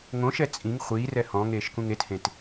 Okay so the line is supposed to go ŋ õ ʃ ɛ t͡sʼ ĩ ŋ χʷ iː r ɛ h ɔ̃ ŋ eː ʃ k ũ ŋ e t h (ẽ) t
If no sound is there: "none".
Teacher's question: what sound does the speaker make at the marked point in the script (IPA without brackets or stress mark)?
ẽ